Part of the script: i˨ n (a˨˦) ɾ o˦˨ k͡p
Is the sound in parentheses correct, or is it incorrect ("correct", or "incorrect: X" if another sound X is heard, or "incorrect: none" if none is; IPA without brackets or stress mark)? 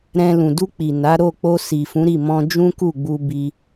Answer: correct